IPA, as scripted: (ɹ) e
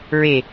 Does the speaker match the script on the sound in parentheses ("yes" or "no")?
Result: yes